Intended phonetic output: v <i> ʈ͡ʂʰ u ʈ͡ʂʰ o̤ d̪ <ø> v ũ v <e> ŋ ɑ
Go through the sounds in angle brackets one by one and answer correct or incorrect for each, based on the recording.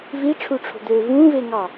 correct, correct, correct

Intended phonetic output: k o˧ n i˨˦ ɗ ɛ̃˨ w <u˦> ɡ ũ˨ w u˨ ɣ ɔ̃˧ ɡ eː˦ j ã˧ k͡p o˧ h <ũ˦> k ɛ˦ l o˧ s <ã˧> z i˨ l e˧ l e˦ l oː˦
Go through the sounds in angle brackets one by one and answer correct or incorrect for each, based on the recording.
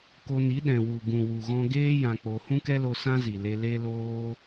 incorrect: u˨, correct, incorrect: ã˦

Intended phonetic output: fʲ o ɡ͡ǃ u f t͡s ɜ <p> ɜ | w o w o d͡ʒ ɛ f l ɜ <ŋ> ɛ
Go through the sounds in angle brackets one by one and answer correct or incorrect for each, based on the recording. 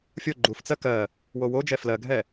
incorrect: k, incorrect: ɡʱ

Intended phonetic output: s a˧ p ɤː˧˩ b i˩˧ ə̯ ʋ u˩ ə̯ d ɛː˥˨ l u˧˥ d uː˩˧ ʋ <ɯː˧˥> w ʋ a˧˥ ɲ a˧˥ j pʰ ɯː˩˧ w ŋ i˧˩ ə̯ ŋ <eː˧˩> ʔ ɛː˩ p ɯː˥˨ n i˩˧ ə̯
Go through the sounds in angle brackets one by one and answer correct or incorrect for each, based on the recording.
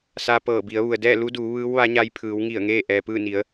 correct, incorrect: eː˥˨

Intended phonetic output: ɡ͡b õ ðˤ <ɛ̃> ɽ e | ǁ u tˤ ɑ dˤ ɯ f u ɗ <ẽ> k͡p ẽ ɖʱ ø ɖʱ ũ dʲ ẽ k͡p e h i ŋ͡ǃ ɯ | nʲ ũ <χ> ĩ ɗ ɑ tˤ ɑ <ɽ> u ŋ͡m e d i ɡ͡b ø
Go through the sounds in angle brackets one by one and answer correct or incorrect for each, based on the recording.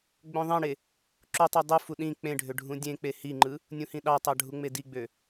incorrect: ẽ, incorrect: ĩ, incorrect: h, incorrect: ɖʱ

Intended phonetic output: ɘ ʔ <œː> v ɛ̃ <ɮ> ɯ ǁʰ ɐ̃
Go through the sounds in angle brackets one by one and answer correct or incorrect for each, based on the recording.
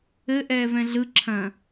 incorrect: ɛː, correct

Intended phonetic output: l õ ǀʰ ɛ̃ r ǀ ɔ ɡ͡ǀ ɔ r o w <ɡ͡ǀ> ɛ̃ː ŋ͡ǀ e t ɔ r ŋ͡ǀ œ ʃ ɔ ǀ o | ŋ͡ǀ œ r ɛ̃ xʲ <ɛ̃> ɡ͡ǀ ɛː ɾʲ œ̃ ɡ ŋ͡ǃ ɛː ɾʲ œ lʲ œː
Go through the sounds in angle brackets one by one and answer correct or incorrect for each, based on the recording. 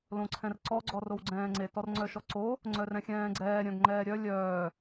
correct, incorrect: ɛ̃ː

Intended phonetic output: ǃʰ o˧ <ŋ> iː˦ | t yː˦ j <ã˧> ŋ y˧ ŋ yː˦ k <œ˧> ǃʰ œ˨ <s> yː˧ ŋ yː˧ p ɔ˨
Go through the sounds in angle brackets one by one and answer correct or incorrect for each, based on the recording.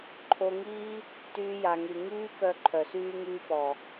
correct, incorrect: a˧, correct, correct

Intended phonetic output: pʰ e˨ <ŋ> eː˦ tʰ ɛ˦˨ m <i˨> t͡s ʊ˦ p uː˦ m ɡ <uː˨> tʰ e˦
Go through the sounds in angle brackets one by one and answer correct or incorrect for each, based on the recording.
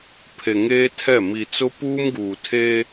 correct, correct, correct

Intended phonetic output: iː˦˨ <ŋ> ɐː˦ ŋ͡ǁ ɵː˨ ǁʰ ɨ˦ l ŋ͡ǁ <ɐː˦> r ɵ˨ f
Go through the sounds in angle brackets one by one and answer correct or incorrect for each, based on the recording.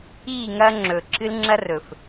correct, incorrect: ɐ˦

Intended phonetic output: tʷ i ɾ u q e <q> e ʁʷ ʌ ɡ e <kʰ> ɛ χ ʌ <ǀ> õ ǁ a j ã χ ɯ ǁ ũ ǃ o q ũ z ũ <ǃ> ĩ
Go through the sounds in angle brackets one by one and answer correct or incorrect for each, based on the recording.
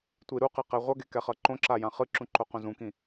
correct, incorrect: k, incorrect: ǃ, incorrect: k

